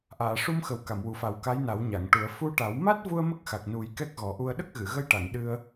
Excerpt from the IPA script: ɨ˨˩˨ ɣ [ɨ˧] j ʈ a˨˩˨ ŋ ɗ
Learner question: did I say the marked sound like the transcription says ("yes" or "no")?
no